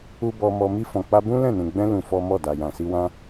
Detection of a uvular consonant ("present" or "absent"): absent